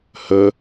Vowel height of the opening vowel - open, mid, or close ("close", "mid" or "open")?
mid